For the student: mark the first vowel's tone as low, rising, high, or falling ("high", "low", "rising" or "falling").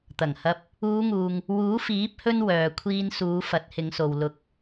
low